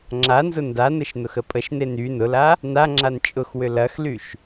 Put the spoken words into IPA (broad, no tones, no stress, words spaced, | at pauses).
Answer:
ŋ͡ǁanzʊ ndanəʃ nʊxəpʼəʃnen y nʊla | naŋ͡ǁan t͡ʃʼʊxwʏ lɐxlyʃ